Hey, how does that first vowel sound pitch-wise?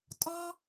high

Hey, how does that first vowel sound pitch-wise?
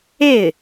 falling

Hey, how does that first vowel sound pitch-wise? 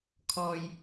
low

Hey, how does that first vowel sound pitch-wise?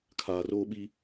low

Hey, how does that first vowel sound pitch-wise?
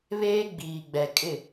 high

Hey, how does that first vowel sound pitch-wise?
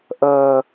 low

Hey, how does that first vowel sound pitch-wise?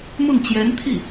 falling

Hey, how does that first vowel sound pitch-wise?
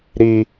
high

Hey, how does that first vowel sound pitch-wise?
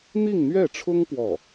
falling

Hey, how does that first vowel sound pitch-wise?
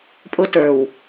high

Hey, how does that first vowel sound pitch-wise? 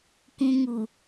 low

